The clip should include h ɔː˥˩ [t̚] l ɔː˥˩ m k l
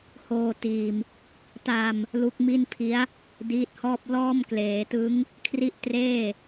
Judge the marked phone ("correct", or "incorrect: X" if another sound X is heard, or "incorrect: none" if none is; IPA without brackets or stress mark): incorrect: p̚